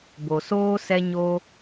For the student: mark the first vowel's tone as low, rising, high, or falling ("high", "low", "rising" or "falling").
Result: low